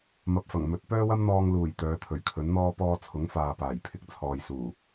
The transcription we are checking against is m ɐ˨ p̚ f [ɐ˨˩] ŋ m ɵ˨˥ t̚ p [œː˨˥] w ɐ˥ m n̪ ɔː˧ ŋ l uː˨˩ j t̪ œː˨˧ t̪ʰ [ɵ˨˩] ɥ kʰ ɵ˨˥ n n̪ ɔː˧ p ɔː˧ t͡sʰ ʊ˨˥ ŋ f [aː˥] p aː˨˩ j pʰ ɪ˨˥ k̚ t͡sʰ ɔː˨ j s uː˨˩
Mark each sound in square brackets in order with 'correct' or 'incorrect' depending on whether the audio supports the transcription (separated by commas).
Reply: correct, incorrect, correct, incorrect